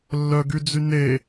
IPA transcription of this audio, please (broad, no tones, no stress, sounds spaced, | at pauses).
lː œ ɡ y d͡z y n e